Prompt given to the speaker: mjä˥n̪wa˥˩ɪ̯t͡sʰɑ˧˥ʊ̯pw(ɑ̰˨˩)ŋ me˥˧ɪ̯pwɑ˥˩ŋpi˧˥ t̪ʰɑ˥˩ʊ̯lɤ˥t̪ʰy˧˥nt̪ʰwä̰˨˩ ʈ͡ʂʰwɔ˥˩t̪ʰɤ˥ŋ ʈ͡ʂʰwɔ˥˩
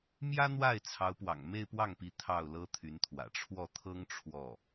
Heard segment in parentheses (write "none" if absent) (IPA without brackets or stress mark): ɑ̰˨˩